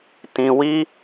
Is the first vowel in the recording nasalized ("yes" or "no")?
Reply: yes